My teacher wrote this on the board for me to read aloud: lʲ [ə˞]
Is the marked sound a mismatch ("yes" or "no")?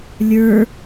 no